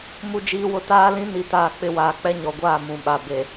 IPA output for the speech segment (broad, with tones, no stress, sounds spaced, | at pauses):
m u˨ d͡ʒ iː˨ w ʊ˨ t aː˦ l ĩ˦ n i˨ t aː˨ k͡p ɪ˨ w aː˨ k͡p ɛ˦ ɲ ɔ˨ ɡʷ aː˦˨ m ũ˨ ɓ a˨ b e˨